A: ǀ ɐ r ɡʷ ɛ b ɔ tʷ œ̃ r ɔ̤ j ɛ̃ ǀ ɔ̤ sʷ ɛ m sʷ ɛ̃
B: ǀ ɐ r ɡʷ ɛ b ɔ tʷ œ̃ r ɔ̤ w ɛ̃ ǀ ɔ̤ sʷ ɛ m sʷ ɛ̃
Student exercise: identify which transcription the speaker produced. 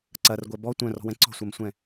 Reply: B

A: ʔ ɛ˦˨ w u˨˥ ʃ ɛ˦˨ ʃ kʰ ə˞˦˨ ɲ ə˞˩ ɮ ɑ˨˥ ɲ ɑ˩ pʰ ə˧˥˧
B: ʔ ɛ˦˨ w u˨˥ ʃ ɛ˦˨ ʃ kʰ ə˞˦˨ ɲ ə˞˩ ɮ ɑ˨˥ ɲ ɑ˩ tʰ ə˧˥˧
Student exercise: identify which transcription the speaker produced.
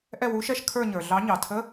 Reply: B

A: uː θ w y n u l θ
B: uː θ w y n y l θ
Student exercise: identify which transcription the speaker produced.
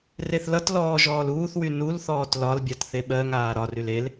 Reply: A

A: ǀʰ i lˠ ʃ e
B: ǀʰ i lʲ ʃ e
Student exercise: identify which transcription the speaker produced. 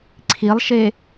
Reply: A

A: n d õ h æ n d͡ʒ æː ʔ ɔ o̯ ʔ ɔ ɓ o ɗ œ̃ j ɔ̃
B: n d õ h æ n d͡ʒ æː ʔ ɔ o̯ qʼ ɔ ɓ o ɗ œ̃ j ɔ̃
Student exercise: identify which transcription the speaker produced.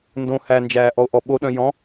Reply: A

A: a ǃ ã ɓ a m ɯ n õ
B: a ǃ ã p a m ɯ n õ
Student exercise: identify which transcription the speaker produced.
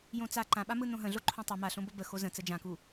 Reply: A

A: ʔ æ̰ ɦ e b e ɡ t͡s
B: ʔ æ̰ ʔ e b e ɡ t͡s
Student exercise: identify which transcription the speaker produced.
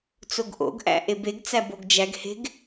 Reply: B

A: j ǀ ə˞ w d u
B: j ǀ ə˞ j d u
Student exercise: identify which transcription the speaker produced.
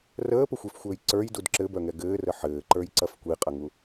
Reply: B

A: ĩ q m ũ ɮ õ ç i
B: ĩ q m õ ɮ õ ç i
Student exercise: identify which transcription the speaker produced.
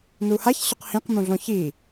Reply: A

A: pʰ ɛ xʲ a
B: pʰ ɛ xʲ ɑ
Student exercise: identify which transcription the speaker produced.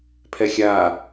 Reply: A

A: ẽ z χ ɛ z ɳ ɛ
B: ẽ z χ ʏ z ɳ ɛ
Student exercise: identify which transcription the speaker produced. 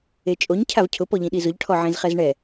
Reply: A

